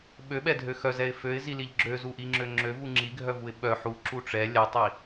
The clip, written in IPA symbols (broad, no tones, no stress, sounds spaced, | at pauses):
ɓ ø ɓ ɛ dʱ ø x œ z ɛ ɪ̯ f ø ɪ̯ z i l i ʎ ɡ͡ǁ ø z u ʔ i ŋ͡ǁ ø ŋ͡ǁ ø v u ŋ͡ǁ i ɡʱ œ v u ɪ̯ ɓ œ ħ u ǁ u ʈ͡ʂ ɛ lʲ ɛ tˤ i